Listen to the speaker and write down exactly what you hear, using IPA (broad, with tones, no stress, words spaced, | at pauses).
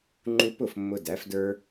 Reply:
ŋ͡ǃu˧pʊ˦˨f mːʊ˧dæ˨˦fdə˞˦